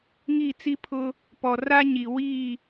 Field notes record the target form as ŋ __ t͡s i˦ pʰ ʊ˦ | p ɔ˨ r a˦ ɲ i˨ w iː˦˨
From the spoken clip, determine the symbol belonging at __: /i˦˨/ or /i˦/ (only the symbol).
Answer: i˦˨